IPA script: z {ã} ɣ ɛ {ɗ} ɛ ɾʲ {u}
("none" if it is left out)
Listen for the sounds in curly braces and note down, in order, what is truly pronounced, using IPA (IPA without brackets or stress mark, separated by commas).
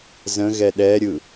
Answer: ə̃, ɗ, ɯ